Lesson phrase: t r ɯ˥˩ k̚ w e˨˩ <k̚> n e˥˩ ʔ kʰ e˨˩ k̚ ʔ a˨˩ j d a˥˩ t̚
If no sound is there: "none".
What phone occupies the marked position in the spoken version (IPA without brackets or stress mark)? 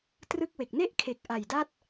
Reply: k̚